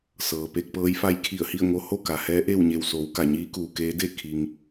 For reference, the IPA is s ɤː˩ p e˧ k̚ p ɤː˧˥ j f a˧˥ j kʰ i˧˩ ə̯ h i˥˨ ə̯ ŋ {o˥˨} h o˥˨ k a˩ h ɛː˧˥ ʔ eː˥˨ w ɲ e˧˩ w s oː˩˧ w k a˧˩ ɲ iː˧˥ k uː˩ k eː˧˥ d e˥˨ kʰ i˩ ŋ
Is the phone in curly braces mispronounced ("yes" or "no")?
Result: yes